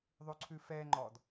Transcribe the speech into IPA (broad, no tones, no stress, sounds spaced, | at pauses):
ðˤ ʉ ǀʰ ʉ f ɛ ŋ͡ǃ ɔ d